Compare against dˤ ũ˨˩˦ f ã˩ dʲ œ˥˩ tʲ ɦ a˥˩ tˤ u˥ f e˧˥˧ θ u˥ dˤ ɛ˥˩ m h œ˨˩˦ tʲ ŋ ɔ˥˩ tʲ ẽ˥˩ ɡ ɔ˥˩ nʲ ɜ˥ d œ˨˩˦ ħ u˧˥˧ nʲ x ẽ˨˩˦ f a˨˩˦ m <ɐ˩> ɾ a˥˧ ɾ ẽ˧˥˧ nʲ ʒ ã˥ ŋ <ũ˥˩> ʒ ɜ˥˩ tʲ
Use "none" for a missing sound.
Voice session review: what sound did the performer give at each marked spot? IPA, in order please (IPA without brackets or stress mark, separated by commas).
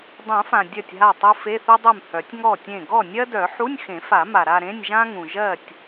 a˩, ũ˩